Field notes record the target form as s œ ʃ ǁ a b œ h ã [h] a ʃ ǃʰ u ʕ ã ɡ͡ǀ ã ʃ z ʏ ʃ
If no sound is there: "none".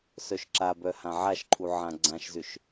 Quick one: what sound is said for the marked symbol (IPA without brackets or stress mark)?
ʕ